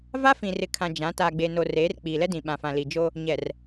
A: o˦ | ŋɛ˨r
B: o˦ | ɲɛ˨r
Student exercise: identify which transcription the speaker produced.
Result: B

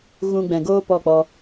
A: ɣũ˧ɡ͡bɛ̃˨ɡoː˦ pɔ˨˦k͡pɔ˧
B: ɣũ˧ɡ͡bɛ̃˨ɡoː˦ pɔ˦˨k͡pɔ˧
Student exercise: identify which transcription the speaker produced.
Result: B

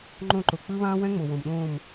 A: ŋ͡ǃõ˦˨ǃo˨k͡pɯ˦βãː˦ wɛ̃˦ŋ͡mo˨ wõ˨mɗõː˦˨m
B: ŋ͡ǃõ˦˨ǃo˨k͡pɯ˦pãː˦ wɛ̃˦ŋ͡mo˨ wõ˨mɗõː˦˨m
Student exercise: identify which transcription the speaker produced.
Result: A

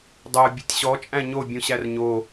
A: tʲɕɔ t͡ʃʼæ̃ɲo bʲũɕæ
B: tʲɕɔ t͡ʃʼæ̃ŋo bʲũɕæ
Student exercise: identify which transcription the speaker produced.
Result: A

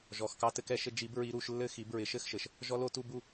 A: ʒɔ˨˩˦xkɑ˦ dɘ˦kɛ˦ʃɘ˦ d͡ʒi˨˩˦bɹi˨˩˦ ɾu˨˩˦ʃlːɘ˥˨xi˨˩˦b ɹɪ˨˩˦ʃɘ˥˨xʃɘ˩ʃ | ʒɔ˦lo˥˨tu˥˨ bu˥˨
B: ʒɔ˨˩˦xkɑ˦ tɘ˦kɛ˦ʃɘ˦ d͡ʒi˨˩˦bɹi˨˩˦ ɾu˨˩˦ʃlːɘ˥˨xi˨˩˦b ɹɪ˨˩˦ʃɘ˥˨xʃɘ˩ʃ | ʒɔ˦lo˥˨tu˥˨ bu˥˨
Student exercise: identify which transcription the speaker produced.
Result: B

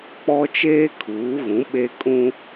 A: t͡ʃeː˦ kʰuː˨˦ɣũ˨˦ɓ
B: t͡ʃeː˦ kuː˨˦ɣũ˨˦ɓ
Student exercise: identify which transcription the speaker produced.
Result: A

